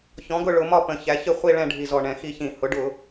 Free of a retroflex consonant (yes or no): no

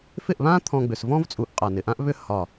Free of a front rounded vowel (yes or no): no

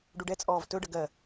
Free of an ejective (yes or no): no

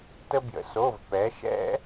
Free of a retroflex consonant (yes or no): yes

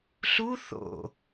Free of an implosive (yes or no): yes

